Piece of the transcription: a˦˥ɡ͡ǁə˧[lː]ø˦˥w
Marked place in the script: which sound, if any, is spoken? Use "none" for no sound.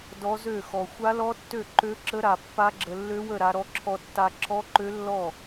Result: lː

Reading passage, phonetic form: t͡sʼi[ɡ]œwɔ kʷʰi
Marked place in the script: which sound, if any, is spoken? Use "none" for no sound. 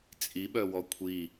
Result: ɓ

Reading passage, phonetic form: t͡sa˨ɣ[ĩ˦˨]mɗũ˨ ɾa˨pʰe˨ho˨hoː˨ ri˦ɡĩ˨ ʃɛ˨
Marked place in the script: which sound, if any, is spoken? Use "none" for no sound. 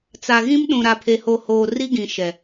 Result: ĩ˦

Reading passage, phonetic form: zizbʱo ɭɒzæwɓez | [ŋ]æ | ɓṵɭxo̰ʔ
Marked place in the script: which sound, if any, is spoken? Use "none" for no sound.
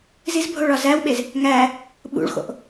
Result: ŋ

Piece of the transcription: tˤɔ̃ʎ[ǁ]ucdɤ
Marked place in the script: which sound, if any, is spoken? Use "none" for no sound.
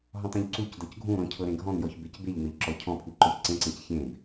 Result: ǀ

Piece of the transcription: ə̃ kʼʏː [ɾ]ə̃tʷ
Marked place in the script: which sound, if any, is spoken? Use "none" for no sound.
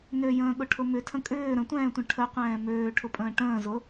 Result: ɾ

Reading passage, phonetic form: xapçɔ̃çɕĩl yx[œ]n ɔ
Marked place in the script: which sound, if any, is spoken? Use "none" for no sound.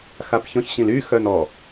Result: œ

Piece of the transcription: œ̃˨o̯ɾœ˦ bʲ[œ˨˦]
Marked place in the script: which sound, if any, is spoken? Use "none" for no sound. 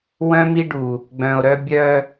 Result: œ˦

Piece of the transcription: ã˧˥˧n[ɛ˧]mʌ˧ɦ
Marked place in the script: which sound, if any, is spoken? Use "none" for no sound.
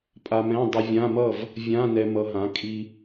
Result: ɛ˧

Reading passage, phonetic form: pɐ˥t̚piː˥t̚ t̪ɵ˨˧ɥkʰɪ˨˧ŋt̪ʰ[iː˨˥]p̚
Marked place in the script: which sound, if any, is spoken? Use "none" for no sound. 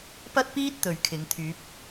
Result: yː˨˥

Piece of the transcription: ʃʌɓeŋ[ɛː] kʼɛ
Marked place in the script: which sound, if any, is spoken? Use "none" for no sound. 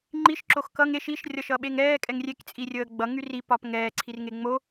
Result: ɛː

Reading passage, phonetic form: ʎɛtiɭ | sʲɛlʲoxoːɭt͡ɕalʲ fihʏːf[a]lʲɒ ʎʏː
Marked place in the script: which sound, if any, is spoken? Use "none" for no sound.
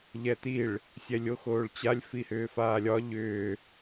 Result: aː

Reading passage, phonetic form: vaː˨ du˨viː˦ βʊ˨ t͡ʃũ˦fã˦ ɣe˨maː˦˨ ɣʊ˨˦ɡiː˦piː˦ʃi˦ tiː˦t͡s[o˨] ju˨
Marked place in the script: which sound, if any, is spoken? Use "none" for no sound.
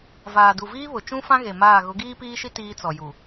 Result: ɔ˨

